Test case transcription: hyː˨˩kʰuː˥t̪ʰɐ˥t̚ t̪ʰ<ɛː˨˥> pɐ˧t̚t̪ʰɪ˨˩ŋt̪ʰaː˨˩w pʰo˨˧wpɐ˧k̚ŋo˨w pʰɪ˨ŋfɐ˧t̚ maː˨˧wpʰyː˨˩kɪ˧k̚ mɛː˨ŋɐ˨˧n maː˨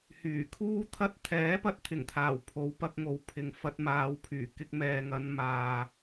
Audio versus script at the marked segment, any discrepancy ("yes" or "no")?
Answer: no